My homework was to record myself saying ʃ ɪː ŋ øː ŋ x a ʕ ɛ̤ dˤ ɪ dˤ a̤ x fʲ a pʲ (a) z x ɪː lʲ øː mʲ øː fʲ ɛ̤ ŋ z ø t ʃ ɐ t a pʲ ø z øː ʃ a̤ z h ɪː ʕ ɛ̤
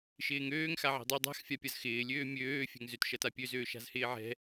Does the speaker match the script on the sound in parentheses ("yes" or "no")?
no